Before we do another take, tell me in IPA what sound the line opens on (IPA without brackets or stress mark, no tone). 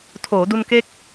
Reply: tʰ